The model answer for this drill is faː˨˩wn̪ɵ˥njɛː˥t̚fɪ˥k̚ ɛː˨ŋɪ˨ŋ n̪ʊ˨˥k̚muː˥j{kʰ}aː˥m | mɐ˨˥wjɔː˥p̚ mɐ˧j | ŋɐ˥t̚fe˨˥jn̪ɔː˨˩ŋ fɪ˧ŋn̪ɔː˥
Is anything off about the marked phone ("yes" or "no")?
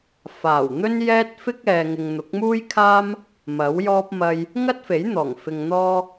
no